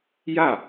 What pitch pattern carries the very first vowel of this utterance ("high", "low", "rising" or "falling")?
falling